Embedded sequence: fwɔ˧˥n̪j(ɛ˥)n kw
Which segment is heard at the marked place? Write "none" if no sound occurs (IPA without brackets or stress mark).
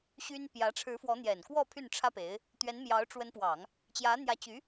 ɛ˨˩